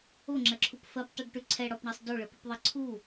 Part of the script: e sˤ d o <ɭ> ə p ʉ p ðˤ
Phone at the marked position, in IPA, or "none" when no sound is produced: ɭ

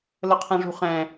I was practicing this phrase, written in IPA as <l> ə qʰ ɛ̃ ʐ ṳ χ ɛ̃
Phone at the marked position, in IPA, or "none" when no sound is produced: l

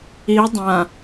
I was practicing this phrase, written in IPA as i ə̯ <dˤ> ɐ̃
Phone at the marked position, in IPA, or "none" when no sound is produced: dˤ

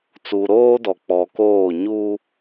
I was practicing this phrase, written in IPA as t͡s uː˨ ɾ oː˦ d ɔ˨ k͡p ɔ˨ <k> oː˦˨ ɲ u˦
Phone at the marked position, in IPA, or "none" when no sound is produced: k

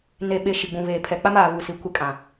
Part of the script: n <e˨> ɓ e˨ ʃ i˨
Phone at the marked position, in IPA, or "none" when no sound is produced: e˨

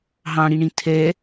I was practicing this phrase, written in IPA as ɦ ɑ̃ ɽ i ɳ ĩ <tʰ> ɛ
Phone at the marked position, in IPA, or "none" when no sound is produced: tʰ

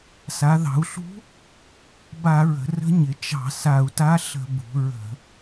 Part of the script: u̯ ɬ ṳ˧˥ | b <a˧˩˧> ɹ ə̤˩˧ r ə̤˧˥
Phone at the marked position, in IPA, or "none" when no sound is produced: a˧˩˧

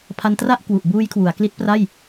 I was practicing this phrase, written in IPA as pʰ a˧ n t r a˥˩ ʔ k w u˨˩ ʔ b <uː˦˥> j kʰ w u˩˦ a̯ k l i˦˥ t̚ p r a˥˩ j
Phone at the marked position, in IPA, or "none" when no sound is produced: uː˦˥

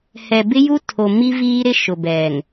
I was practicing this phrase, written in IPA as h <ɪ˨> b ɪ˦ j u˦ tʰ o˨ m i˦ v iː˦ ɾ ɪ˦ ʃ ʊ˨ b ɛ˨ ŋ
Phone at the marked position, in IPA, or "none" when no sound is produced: ɛ˨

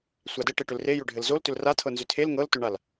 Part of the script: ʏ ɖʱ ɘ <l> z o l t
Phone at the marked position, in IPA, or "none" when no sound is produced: l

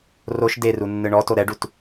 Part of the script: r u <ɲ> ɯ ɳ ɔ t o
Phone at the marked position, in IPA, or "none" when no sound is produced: nː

